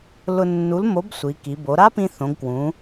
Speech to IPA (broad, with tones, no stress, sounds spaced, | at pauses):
l ʊ˧ nː u˨˥ l m o˨˥ b sʷ i˩˧ k i˩˧ b o˩˧ ɾ a˦˥ p ĩ˧ θ õ˩˧ ɡ k w ũ˩˧